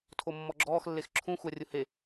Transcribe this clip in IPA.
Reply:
tʰ o mː ɔ ɡ͡ǁ ɔː x lː e x ǁʰ ũ xʷ a rʲ ʊ h e

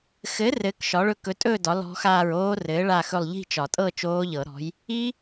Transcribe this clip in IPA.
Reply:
x ɘ˨˥ r ɘː˨˥ k ʃ ɒ˨˥ ɭ ɵ˦˥ k ɵ˨˥ tʼ ɵː˥˧ d ɒ˨˥ l ɔ̤˦˥ x aː˥˧ ɹ oː˦˥ r ɘː˨˥ ɭ a˥˧ x ɵ˥˧ lˠ ʎ i̤˥˧ t͡ʃ ɒ˨˩˦ tʼ ɤ˥˧ t͡ʃ oː˦˥ ʎ ɤ˨˩˦ ɾ ɔ̤˨˥ j | i˦˥

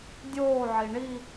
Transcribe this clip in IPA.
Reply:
dʲ oː ʕ i ɳ i

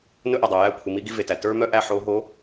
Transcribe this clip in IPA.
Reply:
n ɵ˦ ʔ ɛ˨ dˤ o˨ j æ˦˨ kʷʰ i˨ m i˦ ɡ i˦ v e˨ t æ˨ t ə˞˦ m œ˦ ʔ æ˦ ħ o˨˦ ɦ o˨˦

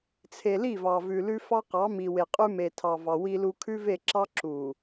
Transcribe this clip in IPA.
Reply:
t͡sʰ e˨ l i˦˨ v ɑ˨ v ʉ˨ l ʉ˦ f ɑ˦ q ɑ˨˦ m i˨ w e˨ qʼ ʉ˦ m e˨ tʰ ɑ˨ v ɑ˨ w i˦ l u˦ kʰ ʉ˦ v e˦˨ ǁ ɑ˦ ǁ u˨

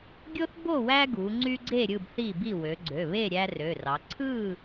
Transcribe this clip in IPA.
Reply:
ɡʲ o˦ θ b o˥˨ w æ˦ ɡ u˩˧ ŋ͡ǀ y˦ ɡ͡ǀ e˥˨ ɾʲ ɯ˥˨ b θ i˥˨ b i˥˨ w ø˩˧ ɡ͡ǀ ø˩˧˩ β e˥˨ ɾʲ æ˦ r ø˩˧˩ r ɑ˩˧ ǀʰ ɯ˥˨

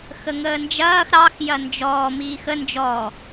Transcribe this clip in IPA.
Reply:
x ə ŋ əː n d͡ʒ ɐː x ɾ ɑ x j ɐ n d͡ʒ ɔː m iː x ə n d͡ʒ ɔ

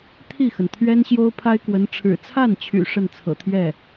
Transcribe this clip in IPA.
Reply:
t̪ʰ i˥˩ x ə˩ n t̪ʰ ɥ ɛ˥ n ɕ j o˥ ʊ̯ pʰ a˥ ɪ̯ k w ə˧˥ n ʈ͡ʂʰ ɻ̩˨˩ t͡sʰ a˥˩ n t͡ɕʰ y̰˨˩ ʂ ə˥˩ n t͡sʰ ɤ̰˨˩ t̪ʰ ɥ ɛ˥˩

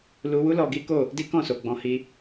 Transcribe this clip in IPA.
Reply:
l u˧ w u˦ l ɔ˧ ɡ i˦ k o˦˨ | d i˦ k ɔ̃˦˨ s o˨ ɡ͡b ɔ̃˧ h i˧

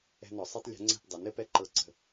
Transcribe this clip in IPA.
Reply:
ɛ̤˦ n ɔ˩˥ sˤ ɤ˦ tˤ lʲ ɛ̤˩˥ ŋ͡ǀ ɛ̤˦˨ p dˤ ɛ˩˥ n ɘ˩˥ p ɛ˦ ǃ ɤ˦ ǀ ə̤˦˨

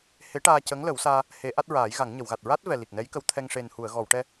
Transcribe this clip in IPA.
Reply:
h e˧˥ ʈ aː˧ c ə˧˥ ŋ l ə˨˩˦ w s aː˧ | h e˨˩˦ ʔ a˦˥ t̚ ɹ aː˨˩˦ j ɣ a˨˩˦ ŋ ɲ ə˨˩˨ w ɣ a˨˩ t̚ ɹ a˦˥ t̚ v ɛ˨˩ l i˨˩ k̚ n ɛ˧˥ j k ə˧˥ w t̪ʰ ɛ˧ ŋ ʂ e˨˩ n h u˨˩˨ ə̯ ɣ ɔ˨˩˨ w ʈ ɛ˧

